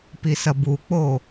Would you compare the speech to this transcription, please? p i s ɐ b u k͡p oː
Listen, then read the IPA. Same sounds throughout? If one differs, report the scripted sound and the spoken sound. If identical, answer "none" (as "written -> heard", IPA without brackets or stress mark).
none